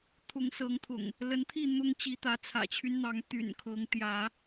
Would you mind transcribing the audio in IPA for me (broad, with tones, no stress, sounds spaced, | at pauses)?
t̪ʰ ʊ˨˦ ŋ s ɤ˨˦ ŋ t̪ʰ ʊ̰˨˩ ŋ | l ə˨˦ n t̪ʰ i˥˨ n̪ ʊ˦ ŋ t͡ɕ i˨˦ t̪ ä˨˦ t͡sʰ ä̰˨˩ t͡ɕʰ y˦ n n̪ ɑ˨˦ ŋ t̪ y̰˨˩ n kʰ ɤ˨˦ ŋ t̪ j ä˨˦